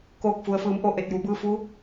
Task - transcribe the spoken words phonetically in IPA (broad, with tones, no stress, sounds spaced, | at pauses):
k oː˧˩ k̚ f u˩ ə̯ f ɯː˩˧ m ʔ o˧˩ ʔ e˧˩ t̚ j u˩˧ b ɯː˧ f u˧˥